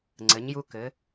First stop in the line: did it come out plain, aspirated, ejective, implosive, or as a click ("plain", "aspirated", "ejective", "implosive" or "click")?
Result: click